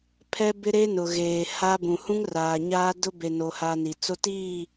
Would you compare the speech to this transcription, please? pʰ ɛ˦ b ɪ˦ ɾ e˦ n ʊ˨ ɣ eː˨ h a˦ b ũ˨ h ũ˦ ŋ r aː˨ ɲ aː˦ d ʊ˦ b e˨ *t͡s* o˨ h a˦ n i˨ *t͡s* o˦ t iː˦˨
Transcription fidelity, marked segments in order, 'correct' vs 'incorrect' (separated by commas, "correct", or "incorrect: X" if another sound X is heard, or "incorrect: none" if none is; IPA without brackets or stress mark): incorrect: n, correct